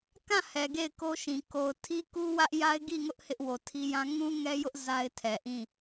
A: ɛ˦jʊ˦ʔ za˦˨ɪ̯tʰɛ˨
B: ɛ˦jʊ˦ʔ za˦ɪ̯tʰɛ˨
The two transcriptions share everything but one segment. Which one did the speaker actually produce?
B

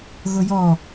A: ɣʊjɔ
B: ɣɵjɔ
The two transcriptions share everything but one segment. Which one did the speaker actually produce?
A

